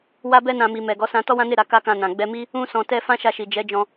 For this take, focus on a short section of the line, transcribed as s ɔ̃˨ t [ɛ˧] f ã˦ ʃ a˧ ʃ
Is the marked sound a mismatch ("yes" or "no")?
no